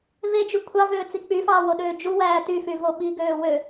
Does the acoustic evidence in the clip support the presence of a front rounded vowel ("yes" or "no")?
yes